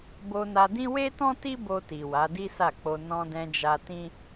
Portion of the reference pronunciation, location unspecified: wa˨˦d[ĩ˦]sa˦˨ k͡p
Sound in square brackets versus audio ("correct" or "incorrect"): incorrect